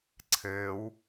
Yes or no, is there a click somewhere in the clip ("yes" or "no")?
yes